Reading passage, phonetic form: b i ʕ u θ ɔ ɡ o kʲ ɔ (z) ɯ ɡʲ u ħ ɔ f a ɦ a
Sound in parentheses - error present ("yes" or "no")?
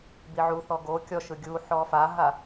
yes